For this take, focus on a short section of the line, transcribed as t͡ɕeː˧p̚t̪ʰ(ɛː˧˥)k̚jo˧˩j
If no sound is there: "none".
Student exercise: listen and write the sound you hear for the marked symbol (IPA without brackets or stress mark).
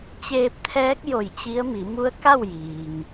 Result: ɛː˧˥